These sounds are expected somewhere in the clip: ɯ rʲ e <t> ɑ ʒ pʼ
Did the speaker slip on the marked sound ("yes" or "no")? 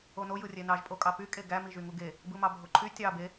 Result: yes